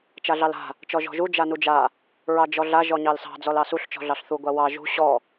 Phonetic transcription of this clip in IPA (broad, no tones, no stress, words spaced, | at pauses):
t͡ʃaɮɑla̤ | t͡ʃɔʒɔ̤ʒu d͡ʒanud͡ʒa | ɹɑd͡ʒɔɮa ʒɔɲɑlsɑ̤ d͡zɔlɑsuɬ t͡ʃɔ̤ɮɑɬθu ɡʷawɑ ʒṳ ɕɔ